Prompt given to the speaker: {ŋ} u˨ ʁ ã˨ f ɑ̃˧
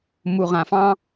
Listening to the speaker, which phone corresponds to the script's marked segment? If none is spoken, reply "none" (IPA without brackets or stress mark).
m